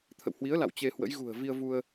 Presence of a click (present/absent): absent